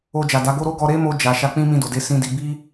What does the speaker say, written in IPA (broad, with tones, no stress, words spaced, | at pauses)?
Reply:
o˧d͡ʒa˨da˨˦ɡo˦ ɾo˦ɡɔ˧ ɾe˦mo˧ d͡ʒa˨ ʃa˧k͡pĩ˦ mĩ˧do˨de˨˦ sĩ˧di˧ bi˦